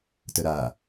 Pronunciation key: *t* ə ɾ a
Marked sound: correct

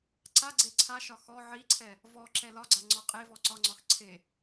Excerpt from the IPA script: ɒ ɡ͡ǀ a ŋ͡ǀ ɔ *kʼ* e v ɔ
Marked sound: incorrect: qʼ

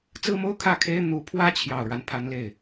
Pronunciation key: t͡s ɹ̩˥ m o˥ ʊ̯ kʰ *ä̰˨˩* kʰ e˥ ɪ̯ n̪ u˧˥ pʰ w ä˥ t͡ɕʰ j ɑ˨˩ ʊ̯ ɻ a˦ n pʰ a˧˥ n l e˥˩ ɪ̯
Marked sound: incorrect: ä˥˩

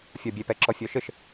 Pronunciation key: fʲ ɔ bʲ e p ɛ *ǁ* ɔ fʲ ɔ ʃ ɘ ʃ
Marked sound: correct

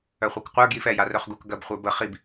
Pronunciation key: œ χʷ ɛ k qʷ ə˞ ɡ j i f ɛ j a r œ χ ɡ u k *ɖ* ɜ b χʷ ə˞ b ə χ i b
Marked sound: incorrect: ɡ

